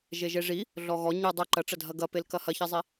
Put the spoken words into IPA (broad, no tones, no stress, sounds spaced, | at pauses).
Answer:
ʒ e ʒ e ʐ i | ɮ ɔ ɣ ɔ ɲ ɨ dˤ ɨ ǃ ɐ ʈ͡ʂ ɐ dʱ ɐ ɡ ɐ p e l k ɐ h ɐ ç e zˤ i